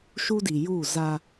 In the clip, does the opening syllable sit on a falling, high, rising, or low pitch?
high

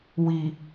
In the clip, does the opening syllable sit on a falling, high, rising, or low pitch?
low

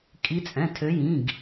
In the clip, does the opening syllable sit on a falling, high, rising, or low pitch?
rising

